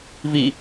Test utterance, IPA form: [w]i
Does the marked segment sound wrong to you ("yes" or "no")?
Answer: yes